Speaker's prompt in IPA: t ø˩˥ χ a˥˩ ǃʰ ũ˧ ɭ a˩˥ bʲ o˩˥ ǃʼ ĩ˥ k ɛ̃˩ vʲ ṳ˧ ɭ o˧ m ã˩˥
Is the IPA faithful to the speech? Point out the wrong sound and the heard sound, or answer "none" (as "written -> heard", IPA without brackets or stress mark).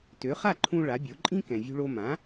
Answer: none